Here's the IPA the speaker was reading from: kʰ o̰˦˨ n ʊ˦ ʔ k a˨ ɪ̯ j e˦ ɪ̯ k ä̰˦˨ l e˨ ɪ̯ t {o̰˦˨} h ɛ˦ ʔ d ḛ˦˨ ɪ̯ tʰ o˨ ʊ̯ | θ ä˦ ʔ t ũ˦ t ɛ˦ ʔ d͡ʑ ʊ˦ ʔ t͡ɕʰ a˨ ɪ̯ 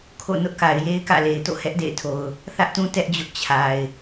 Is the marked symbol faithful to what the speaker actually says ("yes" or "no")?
yes